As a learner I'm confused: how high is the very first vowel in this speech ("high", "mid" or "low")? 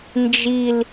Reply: high